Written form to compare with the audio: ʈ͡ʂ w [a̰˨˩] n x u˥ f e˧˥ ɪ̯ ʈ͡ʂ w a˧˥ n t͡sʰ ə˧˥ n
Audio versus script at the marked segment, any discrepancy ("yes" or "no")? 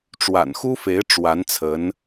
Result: no